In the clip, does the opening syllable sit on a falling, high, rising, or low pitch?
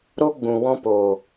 high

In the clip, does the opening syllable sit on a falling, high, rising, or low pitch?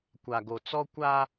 low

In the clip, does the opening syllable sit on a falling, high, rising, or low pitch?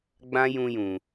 high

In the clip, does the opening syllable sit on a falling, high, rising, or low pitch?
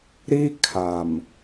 high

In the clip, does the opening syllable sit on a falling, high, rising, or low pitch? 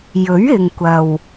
rising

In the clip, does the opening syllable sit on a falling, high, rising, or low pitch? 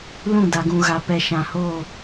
falling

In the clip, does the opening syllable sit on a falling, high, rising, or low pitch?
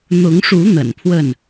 rising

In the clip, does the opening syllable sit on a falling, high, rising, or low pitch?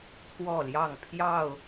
falling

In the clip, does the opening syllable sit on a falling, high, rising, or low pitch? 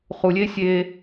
low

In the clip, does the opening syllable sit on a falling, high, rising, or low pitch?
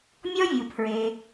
high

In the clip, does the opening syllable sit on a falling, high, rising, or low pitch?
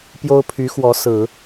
high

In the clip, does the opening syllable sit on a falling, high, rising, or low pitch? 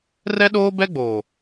high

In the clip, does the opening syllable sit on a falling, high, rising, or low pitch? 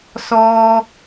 high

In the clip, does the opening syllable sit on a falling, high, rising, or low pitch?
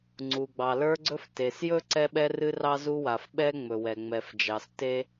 low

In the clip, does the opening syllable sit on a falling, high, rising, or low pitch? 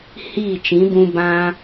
falling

